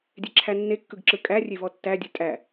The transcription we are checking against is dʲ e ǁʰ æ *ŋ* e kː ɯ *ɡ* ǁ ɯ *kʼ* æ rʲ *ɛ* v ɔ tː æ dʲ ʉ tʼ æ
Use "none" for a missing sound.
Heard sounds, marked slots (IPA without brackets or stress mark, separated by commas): nː, ɡ, kʼ, e